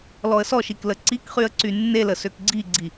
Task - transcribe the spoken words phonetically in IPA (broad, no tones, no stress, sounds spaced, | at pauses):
l ɔ ə̯ s ɔ ʃ i k l ə ǀ i k χ y ə̯ ǀ y nː e l ə s ø k ɡ͡ǀ i ɡ͡ǀ i